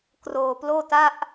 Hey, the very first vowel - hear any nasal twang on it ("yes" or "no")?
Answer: no